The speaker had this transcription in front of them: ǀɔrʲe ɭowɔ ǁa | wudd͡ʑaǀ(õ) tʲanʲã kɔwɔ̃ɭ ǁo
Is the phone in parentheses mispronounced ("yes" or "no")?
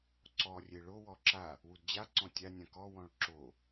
yes